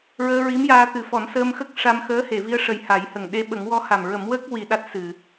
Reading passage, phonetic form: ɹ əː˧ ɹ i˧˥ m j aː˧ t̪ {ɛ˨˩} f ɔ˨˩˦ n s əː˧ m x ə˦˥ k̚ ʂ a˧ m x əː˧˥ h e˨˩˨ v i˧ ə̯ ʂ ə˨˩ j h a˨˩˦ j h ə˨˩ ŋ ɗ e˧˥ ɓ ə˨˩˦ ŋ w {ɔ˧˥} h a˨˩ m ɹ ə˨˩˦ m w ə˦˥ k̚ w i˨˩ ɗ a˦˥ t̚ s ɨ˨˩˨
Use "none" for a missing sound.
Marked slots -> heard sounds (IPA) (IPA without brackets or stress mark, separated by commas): ɨ˨˩, ɔ˧˥